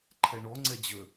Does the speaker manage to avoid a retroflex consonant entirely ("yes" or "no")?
no